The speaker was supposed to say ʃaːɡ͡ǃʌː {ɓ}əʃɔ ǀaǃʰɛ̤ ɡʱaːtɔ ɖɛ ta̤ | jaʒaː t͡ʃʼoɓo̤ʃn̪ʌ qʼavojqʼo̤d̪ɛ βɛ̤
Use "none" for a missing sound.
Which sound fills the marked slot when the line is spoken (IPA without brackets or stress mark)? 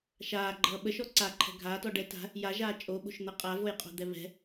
ɓ